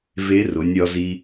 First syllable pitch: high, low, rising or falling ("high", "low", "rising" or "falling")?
rising